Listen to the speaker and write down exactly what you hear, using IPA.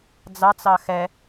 d͡z ɑ t͡s ɑ x ɛ

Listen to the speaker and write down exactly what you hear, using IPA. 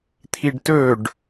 t̪ʰ i ɖ t ɵ ɖ

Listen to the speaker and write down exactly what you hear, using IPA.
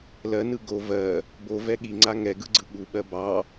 l ɜ n ɯ ɡ o v ɜ | b o v ɛ ɠ i ŋ͡ǀ a ŋ ɛ ɡ ɯ ɡ͡ǀ ɯ ɠ u ɓ ɜ b ɑ

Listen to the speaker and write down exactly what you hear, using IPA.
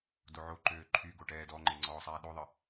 d o ʕ o ǃ øː ǃʰ y ɡ o ʈ ɛː d ɔ ŋ͡ǃ e ŋ͡ǀ ɔː sˤ ɛː ɗ o ðˤ ə

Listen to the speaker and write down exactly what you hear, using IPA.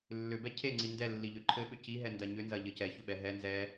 lː ʏ b ɛ cʰ e ŋ͡ǀ i n d ɛ lː i ʎ ʏ ǃʰ ɘ ɓ ʏ c i ɦ ɛ n d ɐ ɲ ʏ n z ɐ ʎ ɘ c ɛ ç ʏ ɓ ɛ ɦ ɛ n z ɛ

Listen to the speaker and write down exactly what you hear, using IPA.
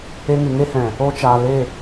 e˧ ŋ ɨ˨ ŋ e˦ h ɛ̃˨ | o˧ t͡ʃ aː˨ l e˦˨

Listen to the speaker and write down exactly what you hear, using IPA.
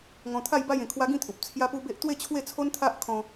ŋ ɔ̃˧ t̪ʰ a˥˧ j b a˥˧ j ẽ˧ kʰ w a˦ ɡ ĩ˥˧ t̪ʰ u˨ p̚ t͡sʰ j a˦ p u˦ b e˦ ʔ t̪ w e˥˧ t͡ɕʰ w e˥˧ t͡sʰ o˦ n t̪ʰ a˦ ʔ kʰ ɔ̃˧

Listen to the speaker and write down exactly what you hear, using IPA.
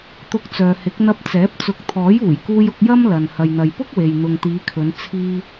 t̪ ʊ˧ k̚ t͡s œː˨ h ɪ˨˥ k̚ n̪ ɐ˧ p̚ t͡s ɛː˨˥ p̚ t͡s ʊ˨˥ k̚ t̪ʰ ɔː˨˥ j uː˨˩ j k uː˧ j ʊ˧ k̚ j ɐ˥ m l ɐ˨ n h ɐ˨ j n̪ ɐ˨ j p ʊ˥ k̚ w e˨ j n̪ ʊ˨ ŋ t̪ iː˨˧ kʰ ɵ˨˧ n t͡sʰ iː˧

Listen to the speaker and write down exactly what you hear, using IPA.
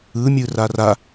ɯ mʲ ɯ r a r a

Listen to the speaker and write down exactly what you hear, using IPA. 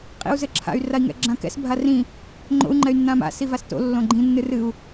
qʼ ḭ u̯ z ɘ ǁʰ a̰ y̯ r a i̯ ŋ ɛ̰ ɡ͡ǁ ã k ɛ̰ s bʱ a r ĩ | ŋ͡ǃ o̰ u̯ ŋ͡ǃ ɛ y̯ nː ã m a̰ s i v a s t o̰ lː õ ɡ͡ǃ ĩ nː ɨ r ɨ u̯

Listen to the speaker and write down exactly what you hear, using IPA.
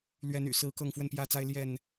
l ɥ ɛ˨˦ n y̰˨˩ s ɹ̩˨˦ k ɤ˥˨ ŋ f w ə˥˨ n p j ä˦ t͡s a˦ ɪ̯ l j ɛ˥˨ n

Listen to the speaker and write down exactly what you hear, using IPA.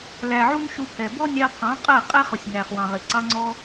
l æ˨ ʕ u˦ n ʃ u˧ pʰ ɛ˨ b ɔ˦ nʲ ɑ˧ pʰ ɑ̃˨˦ qʼ ɜ˦˨ qʼ ɛ˦ χ ʊ˨ sʲ n æ˨ χ w ɑ̃˨ ʁ ɪ˨ ǀ ɑ˧ ŋ͡ǀ ɔ˧

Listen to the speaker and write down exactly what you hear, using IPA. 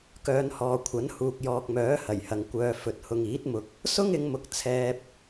k œː˨˧ n h ɔː˨ kʷʰ ɐ˨˥ n h uː˨ k̚ j ɔː˨ k̚ m œː˨˥ h ɐ˨˩ j h ɐ˨ ŋ kʷ œː˨ f ɵ˨ t̚ h ʊ˨ ŋ iː˨˥ t̚ m ʊ˨ k̚ | s ʊ˥ ŋ ɪ˨˧ ŋ m ʊ˨ k̚ t͡sʰ ɛː˧ p̚

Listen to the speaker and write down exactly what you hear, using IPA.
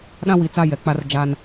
ɗ ã˦ w i˨ t͡s a˦ j ɛ˨ k͡p a˦ r d͡ʒ a˦ n

